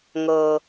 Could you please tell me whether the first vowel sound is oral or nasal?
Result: oral